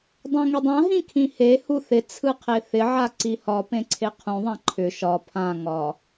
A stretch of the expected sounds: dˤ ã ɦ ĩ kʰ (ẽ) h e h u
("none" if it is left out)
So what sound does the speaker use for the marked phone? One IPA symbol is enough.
ĩ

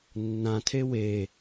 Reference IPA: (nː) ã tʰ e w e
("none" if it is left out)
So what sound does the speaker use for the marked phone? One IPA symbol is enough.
nː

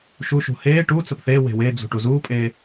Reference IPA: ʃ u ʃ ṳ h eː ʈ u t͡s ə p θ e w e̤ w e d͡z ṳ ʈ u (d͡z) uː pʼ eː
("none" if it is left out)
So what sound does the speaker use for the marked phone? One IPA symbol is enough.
z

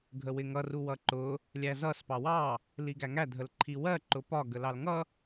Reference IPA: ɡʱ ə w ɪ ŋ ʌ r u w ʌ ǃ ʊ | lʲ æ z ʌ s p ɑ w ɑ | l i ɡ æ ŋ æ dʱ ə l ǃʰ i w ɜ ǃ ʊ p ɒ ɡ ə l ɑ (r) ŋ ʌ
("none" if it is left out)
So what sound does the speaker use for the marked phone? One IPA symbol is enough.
l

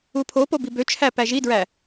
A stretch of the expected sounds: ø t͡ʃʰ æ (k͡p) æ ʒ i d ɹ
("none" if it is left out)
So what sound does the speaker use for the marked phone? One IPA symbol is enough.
p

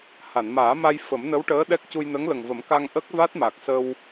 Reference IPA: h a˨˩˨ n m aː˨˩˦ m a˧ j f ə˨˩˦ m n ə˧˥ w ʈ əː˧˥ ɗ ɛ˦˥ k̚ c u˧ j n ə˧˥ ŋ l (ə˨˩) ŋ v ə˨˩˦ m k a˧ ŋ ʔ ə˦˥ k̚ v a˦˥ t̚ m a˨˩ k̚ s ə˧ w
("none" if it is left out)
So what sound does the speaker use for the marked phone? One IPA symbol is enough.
ə˨˩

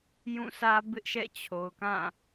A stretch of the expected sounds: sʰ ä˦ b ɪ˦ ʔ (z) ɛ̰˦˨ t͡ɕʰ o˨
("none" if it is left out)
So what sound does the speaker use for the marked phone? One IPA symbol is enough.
ʃ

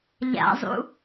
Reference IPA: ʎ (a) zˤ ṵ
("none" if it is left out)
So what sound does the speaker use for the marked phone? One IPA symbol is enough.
a̰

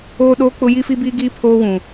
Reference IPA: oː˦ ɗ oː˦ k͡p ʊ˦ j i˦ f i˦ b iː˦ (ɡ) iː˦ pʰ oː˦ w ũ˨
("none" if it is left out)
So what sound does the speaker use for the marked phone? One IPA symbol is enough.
ɡ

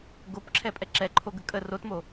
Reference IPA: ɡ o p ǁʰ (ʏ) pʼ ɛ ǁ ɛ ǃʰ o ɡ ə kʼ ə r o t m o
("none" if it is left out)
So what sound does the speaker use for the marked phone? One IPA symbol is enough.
ɛ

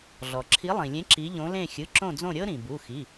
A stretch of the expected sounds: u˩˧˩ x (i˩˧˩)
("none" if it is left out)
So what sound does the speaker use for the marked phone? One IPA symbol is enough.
i˩˧˩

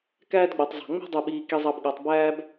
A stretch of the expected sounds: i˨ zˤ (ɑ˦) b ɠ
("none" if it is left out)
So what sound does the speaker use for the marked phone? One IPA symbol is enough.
ɑ˨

